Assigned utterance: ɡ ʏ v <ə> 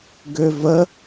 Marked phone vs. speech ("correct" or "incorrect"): correct